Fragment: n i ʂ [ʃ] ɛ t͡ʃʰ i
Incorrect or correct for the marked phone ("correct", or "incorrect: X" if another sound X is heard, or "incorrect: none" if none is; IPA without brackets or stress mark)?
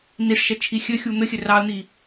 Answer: correct